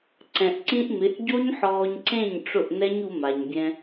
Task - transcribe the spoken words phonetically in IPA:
ǀ ɛ̃˨ ʔ ǀ ĩ˧ ʔ m ɪ˨˦ ʔ ɟ o˦ ɲ ħ ɔː˧ ɲ ǀ ẽ˦˨ ɲ ʈ͡ʂ ʊ˦˨ ʔ n ɛ˦ ɲ u˧ m a˨ ɲ bʲ ɛ̃˧

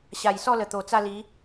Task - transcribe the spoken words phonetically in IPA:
ɕ a˨˩ j s ɔ˥˧ l ə˨˩ t̪ o˨˩ t͡s a˥˧ l i˨˦

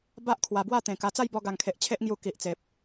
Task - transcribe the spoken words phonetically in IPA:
b a˦ ʔ kʰ w a˨˩ b w a˥˧ t̪ ẽ˨˩ k a˧ t͡s a˥˧ j b ɔ˧ ɡ a˨˩ ŋ kʰ e˨ ʔ t͡ɕʰ e˦ ʔ ŋ j u˧ k i˨ ʔ t͡s e˨ p̚

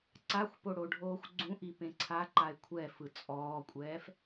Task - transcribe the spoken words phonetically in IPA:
ǀ a xʷ p o ɽ o ɖʱ oː xʷ ɡ͡ǀ ũ ʔ i p ẽ ǀʰ a ǃ a ɪ̯ kʷʰ ɛ f ɯ t͡sʼ ɔː kʷʼ ɛː f

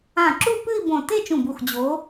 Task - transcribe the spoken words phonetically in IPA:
ã˧˩ ǁ u˥˧ p ɨ˥˧ i̯ b õ˧˩ t e˥˧ t͡ʃ ũ˧˩ b u˧˩ x d͡ʑ o˨˦

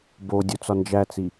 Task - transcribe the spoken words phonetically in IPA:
b o dʲ u t͡s ɒ n d͡ʒ æ t͡s i

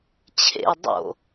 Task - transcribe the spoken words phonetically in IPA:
t͡ɕʰ ḛ ə̯ dˤ o̰

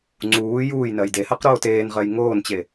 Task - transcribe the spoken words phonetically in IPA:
ŋ͡ǀ uː j uː j n ɜ j d e h ɜ q ɾ oː t eː n ʁ ɜ j ŋ oː n t͡ɕ e

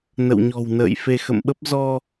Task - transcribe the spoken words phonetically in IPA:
n ə̰˧˨ w ɲ ɔ̤˨˩ w n ə̰ː˧˨ j f e˧ x ə̰˧˨ m ɓ ə˦˥ p̚ z ɔ˧

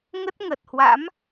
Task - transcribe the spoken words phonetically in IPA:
ŋ ə˦˥ t̚ ŋ ə˨˩ t̚ h w a̰˧˥ m

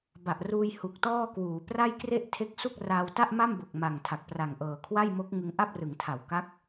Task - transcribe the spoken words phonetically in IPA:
b a˨˩ ʔ r uː˧ j h u˨˩ k̚ t ɔː˥˩ k w uː˩˦ p r a˥˩ j k r e˥˩ ʔ tʰ e˦˥ k̚ s u˥˩ k̚ r aː˧ w t a˥˩ ʔ m a˥˩ m b o˨˩ k̚ m a˨˩ ŋ tʰ a˨˩ k̚ p r a˨˩ ŋ ʔ ɤː˨˩ kʰ w a˥˩ j m o˦˥ k̚ ŋ ɯ˧ ŋ ʔ a˥˩ p̚ r ɯ˩˦ ŋ tʰ a˩˦ w k a˦˥ k̚

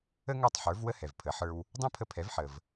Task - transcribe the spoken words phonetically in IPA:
ə˥ ŋ ə˞˥˩ tˤ ħ ə˞˩˥ v w ə˥ h ɛ˩ v pʰ ə˩˥ ħ ə˞˧ w | dˤ ɛ̃˥ pʰ ə˧ pʰ ɛ˩˥ v ħ ə˩ v

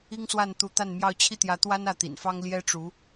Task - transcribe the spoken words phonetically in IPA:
i˥ ŋ s w a˥˩ n t̪ u˧˥ t̪ a˥˧ n m j ɑ˥˧ ʊ̯ t͡ɕʰ i˥˩ t̪ j ä˧˥ t̪ w a˥ n ä˥˩ t̪ ḭ˨˩ n f ɑ˥ ŋ l j ɛ˥ ʈ͡ʂ u˧˥

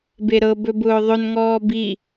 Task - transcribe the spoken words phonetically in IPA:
b e ɾ ɤ b ɵ b ʊː ðˤ ɵ n ŋ ɔː b i

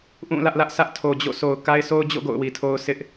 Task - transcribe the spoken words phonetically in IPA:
ʔ ũ˦˨ l ä˦ ʔ l ä˦ ʔ sʰ ä˦ ʔ tʰ o˨ d͡ʑ o̰˦˨ s o˨ ʊ̯ k a˦ ɪ̯ sʰ o˦ ʊ̯ d͡ʑ o̰˦˨ ɡ o̰˦˨ ʊ̯ w i˨ tʰ o˦ ʊ̯ s ɪ˦ ʔ

